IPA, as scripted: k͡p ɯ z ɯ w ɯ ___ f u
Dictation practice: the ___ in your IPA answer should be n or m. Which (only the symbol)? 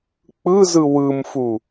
m